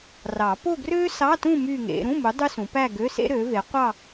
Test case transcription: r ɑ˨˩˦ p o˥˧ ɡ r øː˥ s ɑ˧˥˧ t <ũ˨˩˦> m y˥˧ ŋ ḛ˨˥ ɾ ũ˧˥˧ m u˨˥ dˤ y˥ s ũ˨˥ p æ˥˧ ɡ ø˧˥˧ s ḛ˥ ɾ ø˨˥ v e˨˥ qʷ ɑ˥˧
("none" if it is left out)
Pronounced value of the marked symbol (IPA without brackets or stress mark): ũ˥˧